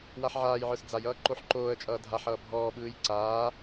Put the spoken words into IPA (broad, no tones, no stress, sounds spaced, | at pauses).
w a ħ ʕ aː j ʕ ə˞ s d͡z a j ʌː ǃ o ħ ǃ oː ə̯ t͡ʃʼ ʌː dʱ a ħ ʌː bʱ ɔː ɓ ɯː j ǀ aː